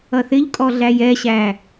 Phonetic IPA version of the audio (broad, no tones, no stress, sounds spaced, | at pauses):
ʌ θ ɪ ʎ kʼ ɔ ɮ æ j ɛ ɕ æ